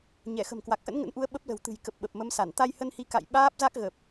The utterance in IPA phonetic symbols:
ɲɛ˧˩xə̤˨˩mkwa˨˩k̚ ʔə̰˧˥nŋə̰˧˥nʔu˨˦ə̯ ɓə˦˥p̚lə̤˨˩wt̪ɨ̤˨˩j kə˨˩p̚ɓə˨˩p̚ mə˨˦msa˧˩n t̪a˧jhə˧nhi˨˦ ka̰˧˨j ɓaː˦˥p̚za˦˥k̚ɣə˨˩p̚

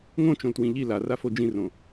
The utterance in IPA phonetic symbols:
ŋõt͡ʃõltwĩ ʎi larafo d͡ʒĩrõ

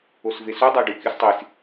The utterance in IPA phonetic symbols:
osvesu dˤaɖukʲustˤis

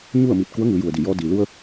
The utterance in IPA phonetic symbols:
ɲu˥˨ə̯miː˧˩t̚ ku˧˥ə̯ŋɯː˩˧ju˩ə̯di˧˩ jɔː˧diː˩ lu˧ə̯

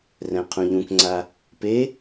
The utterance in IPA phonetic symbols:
rɛ̃qʰũʎũkŋ͡ǀa | pe

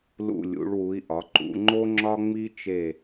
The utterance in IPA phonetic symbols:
lṵ˧˩lʲṵ˩˧ɭwu˩˧i̯ ʔɒ˩˧ǃṵ˩˧ŋ͡ǃo˦ ŋ͡ǁɒ˦ŋ͡mi˦t͡ʃe˧˩

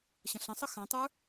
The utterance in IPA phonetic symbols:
ɕə̃ɬə̃sˤə xãtˤə˞

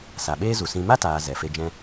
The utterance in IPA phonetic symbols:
sa˨ɓeː˦zu˨sĩ˧ ma˦taː˨ zɛ˨fe˧d͡ʒɛ̃˦

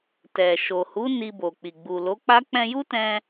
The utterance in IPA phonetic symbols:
tɛ˨ ʃo˨ hu˨˦ ni˧bo˨k͡pi˨ ɡ͡bu˨lo˨˦k͡pa˦ k͡pɛ̃˧ju˦tɛ̃˧

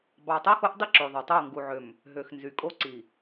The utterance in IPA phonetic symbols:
bɑ˨tˤo˦xo˦ʔdˤi˦ ǁo˨ðˤo˨ tˤo˦˨ŋɡu˨ʕø˨m | ɦø˨xnzy˨ kʼo˦ǀi˨

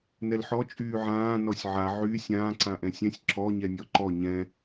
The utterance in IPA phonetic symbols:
nɛlħɔ t͡ʃʼyːʕãː nɔsʲʕa ʕy sʲãː ǀãʔɛ̃sʲɛ̃sʲ ǁɔ ɲɛnʲɔǃɔ ɲɛ̃

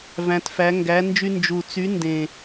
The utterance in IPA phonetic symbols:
væ̃˩˧tfæ˩˧ ŋɡæ˩˧nd͡ʒy˧ nd͡ʒu˨˩t͡sy˨˥ ndẽ˨˩

